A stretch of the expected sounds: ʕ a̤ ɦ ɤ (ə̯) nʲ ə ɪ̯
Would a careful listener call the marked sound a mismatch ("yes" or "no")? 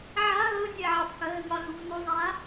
yes